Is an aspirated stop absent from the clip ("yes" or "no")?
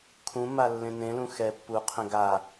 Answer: no